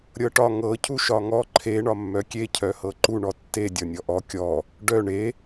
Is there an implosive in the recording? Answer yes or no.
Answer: no